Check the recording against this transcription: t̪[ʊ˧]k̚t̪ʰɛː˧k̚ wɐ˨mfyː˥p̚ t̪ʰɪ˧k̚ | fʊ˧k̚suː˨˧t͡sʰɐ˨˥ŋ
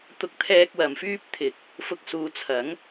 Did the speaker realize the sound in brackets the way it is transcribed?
yes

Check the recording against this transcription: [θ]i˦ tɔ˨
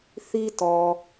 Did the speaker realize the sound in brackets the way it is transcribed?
yes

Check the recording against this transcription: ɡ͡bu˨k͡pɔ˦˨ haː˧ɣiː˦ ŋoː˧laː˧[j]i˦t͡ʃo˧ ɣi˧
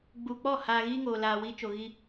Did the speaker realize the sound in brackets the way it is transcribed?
no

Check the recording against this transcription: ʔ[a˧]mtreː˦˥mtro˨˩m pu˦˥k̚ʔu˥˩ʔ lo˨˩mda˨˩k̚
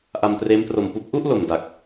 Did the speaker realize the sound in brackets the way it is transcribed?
yes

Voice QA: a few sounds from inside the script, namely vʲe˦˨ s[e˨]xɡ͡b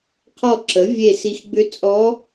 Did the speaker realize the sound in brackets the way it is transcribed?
no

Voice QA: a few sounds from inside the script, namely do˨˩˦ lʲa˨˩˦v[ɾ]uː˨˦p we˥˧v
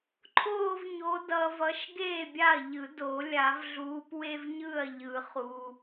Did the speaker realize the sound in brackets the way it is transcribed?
no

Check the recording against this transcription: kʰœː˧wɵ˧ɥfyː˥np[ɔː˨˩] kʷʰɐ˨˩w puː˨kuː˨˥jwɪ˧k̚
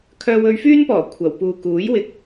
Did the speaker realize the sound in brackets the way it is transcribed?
yes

